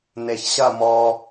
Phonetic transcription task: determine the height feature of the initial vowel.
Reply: mid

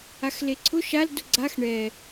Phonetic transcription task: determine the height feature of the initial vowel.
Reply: low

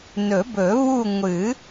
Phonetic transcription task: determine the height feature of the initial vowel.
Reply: mid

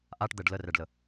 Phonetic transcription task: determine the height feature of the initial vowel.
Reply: low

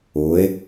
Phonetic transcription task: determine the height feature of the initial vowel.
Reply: high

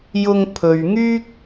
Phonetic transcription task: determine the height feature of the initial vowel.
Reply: high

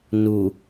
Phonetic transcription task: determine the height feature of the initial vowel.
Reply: high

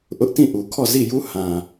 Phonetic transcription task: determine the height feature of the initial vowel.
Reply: high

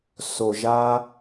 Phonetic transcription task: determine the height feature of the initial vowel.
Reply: mid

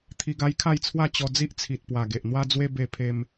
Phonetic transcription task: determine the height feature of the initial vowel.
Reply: high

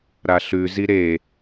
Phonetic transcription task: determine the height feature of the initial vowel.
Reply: low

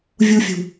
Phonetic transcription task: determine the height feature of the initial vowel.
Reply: high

